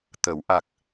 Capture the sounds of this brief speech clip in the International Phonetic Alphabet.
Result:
t̪ ə˨˩˦ w ʔ a˨˩ k̚

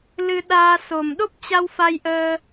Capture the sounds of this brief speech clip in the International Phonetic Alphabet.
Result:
l ɨ˧ ɗ aː˧ s o˨˩ m ɗ o˦˥ p̚ t͡ɕ a˧ w f a˧ j ʔ əː˧

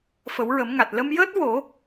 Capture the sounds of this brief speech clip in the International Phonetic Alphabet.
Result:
f ə˨˩˦ w ɹ ə˨˩˦ m ŋ a˨˩ t̚ l ə˧ m j əː˦˥ t̚ w o˨˩˦

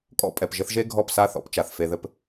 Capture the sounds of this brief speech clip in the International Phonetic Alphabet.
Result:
kʼ ɔ̰˦ pʼ ɛ˨ p ʒ ɘ˦ θ ʒ e˦ ɡʱ ɔ˦˨ p s a˦ θ ɔ̰˦ p t͡ʃ a˨ θ f e˦ ð ɘ˦ p

